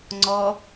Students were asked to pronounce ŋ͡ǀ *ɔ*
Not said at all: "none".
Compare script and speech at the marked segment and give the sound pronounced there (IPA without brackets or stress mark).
ɔ